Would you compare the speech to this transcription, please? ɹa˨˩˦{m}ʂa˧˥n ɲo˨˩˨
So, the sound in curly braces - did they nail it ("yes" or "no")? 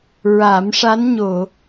yes